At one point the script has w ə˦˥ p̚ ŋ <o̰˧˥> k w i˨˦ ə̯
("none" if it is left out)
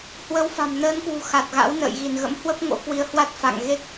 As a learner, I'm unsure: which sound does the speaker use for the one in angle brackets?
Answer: o̰˧˥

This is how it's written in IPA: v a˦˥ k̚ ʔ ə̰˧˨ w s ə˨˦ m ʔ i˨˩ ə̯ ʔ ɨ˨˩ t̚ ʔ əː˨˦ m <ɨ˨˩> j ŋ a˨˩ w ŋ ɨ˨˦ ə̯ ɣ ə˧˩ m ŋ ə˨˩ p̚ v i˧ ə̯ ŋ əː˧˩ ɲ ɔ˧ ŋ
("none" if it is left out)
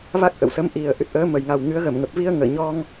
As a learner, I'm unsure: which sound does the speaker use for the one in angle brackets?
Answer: ə˨˩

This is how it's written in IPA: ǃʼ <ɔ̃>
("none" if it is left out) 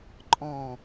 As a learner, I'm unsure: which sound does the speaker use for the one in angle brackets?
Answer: ɔ̃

